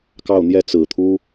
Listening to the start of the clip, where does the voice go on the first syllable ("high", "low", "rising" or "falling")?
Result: falling